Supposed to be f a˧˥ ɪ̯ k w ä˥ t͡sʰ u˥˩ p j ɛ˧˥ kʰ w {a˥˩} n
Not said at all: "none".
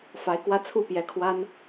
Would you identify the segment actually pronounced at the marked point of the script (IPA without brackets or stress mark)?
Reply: a˥